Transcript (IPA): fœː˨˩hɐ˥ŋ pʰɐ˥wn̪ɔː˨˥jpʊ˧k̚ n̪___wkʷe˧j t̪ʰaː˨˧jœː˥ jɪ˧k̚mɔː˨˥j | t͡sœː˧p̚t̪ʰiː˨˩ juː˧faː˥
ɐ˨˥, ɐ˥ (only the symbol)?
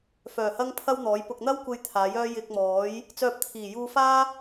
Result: ɐ˥